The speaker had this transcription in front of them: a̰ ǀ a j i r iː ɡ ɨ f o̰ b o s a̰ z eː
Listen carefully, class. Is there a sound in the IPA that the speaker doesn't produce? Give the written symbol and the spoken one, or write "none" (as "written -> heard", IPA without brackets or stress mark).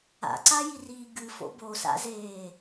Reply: none